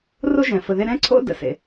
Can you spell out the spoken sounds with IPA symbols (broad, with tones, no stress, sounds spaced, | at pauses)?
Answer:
r o˥ ʒ ɛ̃˩ f ə˨ ð e˦ ɾ ɛ̃˥ ǀʰ o̰˥ d ə̰˨ s ḛ˩